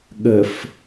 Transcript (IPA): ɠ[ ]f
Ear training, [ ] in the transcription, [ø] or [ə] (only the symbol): ə